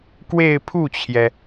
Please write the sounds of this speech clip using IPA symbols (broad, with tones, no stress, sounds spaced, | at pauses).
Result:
k w e˥˧ ɪ̯ pʰ u˥˩ t͡ɕʰ j ɛ˩